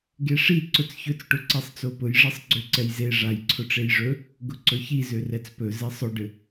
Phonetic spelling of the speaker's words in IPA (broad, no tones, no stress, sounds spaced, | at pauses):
ɡ e ʂ i ǀ ʊ t͡s ç ɵ t͡s ʈ ʊ ǀ ɛ sˤ t͡s o p ʊ j ʐ e sˤ ɡ͡ǀ ø ǀ ɛ j z e ʐ a j ǀʰ ʊ ʈ͡ʂ e j ʐ ɵ | ɡ ʊ ǀ ɵ ç i z ø r ɛ t͡s p ɵ z ɛ sˤ ʊ ɖ ɘ